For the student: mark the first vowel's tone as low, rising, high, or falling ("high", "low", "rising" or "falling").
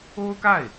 high